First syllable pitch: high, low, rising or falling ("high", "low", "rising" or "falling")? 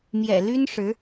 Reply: low